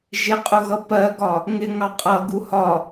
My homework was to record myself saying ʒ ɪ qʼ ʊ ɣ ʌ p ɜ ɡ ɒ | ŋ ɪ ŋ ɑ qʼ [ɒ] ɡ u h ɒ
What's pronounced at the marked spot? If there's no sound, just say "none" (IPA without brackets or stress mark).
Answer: ʌ